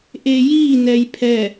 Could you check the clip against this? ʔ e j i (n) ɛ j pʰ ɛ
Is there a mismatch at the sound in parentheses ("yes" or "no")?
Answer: no